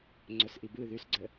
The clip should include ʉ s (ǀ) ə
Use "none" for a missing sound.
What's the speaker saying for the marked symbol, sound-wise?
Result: ɡ͡ǀ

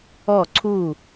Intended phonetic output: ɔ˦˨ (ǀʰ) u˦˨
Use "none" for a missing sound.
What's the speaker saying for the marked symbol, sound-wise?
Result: ǀʰ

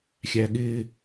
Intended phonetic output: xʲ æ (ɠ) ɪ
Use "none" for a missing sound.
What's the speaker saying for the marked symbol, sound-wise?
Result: ɠ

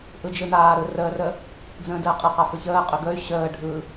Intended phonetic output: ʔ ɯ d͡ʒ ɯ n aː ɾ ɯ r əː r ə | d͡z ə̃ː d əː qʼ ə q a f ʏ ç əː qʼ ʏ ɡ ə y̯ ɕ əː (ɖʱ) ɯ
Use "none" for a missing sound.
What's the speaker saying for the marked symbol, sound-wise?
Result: ɖʱ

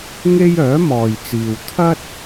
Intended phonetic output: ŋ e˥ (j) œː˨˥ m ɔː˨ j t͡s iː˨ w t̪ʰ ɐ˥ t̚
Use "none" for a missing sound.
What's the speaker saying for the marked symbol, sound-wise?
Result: j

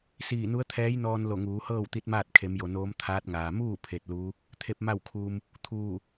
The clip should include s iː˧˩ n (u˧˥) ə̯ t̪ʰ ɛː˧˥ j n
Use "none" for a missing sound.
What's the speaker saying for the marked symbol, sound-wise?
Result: u˧˥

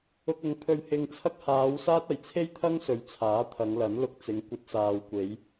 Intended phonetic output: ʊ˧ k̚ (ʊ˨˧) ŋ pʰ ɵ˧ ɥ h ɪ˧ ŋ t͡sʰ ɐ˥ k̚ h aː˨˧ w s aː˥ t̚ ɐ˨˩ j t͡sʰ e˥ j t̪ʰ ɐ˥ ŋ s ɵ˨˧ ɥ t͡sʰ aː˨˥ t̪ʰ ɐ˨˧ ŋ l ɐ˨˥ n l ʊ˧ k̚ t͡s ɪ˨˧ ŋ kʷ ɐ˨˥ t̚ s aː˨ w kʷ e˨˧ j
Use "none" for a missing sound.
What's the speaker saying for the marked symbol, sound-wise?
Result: ʊ˨˧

